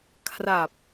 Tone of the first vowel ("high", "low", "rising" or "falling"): low